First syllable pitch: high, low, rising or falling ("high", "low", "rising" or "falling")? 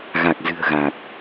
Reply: low